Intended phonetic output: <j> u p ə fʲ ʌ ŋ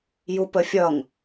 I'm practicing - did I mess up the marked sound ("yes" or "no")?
no